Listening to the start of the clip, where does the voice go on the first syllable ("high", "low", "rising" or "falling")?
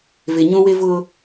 low